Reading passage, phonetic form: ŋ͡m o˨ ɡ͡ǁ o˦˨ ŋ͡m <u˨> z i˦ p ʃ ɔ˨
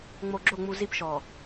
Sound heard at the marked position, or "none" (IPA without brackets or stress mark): u˨